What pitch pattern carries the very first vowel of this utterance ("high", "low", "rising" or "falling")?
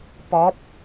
rising